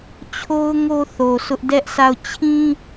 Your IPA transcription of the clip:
t͡ɕʰ o˦ ʊ̯ ŋ o˦ θ o˨ sʰ ʊ˦ ʔ d ɛ˦ ʔ s a˦˨ ʊ̯ t͡ɕʰ ĩ˦

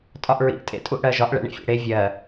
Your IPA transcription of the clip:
tʼ ɒ ʔ ɹ ḭ ʔ tʼ ḛ tʼ u ʔ ɽ ɜ ʒ ɒ ʔ ɭ ɛ̰ ɳ ḭ fʲ ḛ ɽ e vʲ ɜ

